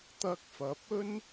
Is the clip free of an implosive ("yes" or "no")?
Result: yes